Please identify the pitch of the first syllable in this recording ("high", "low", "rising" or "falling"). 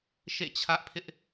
falling